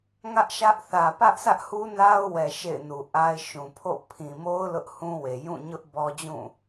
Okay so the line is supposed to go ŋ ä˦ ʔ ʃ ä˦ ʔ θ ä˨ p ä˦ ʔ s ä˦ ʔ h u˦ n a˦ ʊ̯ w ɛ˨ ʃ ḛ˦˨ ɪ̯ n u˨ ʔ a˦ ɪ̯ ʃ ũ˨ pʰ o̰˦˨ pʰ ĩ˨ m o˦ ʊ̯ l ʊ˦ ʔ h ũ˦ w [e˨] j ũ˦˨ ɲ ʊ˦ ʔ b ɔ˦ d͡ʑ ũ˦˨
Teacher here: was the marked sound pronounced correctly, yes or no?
yes